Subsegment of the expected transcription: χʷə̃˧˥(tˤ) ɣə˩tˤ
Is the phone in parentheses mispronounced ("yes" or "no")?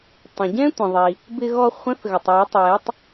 yes